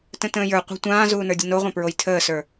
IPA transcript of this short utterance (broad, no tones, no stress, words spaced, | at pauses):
tə̃tə̃ːjə˞ qʷə̤ tʷãːzuːnə˞dʲə noʁʷãpɹoj tʰəːsə˞